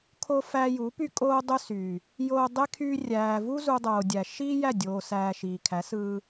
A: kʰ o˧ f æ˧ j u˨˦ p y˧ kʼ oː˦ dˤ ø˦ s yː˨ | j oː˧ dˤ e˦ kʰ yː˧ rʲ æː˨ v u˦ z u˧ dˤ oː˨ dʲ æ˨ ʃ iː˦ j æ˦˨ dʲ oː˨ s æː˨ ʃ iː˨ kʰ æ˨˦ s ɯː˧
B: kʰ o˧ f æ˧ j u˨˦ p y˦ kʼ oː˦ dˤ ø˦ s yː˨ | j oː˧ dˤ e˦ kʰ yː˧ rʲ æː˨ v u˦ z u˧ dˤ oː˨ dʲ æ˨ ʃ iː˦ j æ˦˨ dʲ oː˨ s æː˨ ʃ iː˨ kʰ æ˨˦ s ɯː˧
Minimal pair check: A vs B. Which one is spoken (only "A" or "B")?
B